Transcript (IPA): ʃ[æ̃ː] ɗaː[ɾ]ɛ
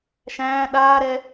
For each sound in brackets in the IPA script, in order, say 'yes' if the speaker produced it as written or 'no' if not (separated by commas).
yes, yes